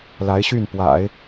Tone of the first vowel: rising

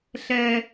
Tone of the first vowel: high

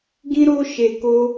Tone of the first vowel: high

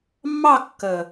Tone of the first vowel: falling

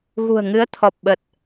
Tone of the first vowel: low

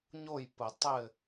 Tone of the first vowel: falling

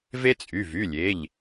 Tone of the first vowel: high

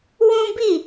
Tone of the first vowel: high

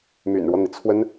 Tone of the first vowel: low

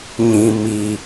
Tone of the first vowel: low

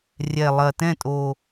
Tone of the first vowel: low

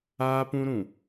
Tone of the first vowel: high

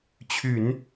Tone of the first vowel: low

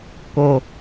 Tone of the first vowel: low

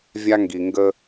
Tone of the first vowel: high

